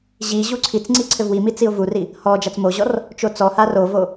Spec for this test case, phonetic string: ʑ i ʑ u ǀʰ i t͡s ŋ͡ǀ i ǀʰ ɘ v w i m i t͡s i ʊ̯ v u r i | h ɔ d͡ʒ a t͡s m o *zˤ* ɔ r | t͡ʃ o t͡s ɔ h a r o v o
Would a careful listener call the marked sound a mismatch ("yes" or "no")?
yes